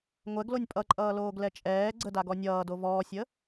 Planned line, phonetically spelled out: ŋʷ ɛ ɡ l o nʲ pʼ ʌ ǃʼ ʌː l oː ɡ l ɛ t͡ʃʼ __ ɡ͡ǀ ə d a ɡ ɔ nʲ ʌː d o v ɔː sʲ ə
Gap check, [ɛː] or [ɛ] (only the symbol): ɛː